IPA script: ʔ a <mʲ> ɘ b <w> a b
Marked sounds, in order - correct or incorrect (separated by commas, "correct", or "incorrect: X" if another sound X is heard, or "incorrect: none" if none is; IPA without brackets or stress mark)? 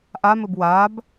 incorrect: m, correct